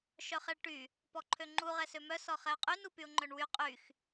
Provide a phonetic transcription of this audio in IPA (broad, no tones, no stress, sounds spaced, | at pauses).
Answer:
ʃ œ χ ɛ ɭ ʈ y | p ɔ ǃʰ ø ŋ͡ǃ u ʁ ɛ s ø m œ s ɔ χ ɛ ʊ̯ qʼ y n u p y ʊ̯ ŋ͡ǃ œ ɳ w y qʼ y x